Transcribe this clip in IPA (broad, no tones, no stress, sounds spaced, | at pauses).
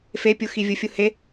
f e pʲ u x i vʲ u fʲ u h e